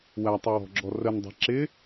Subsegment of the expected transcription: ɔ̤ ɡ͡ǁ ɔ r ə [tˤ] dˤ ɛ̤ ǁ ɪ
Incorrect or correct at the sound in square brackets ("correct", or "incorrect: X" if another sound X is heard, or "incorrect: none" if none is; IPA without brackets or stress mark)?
incorrect: n